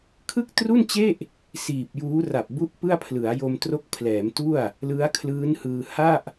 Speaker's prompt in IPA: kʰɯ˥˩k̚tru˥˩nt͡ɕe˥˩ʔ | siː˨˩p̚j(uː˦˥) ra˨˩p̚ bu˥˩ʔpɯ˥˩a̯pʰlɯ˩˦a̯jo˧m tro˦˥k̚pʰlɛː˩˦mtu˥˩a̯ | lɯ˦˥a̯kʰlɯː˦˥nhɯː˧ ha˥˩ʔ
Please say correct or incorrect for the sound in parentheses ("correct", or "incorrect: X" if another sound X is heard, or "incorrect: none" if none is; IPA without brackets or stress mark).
correct